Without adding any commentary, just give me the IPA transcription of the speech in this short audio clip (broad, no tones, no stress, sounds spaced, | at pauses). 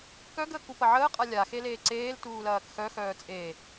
k œ ɡ əː k u p ɐ ʕ əː qʼ a lʲ a x e l eː ǀ eː l t uː l ɐː k x œ x œː t͡sʼ e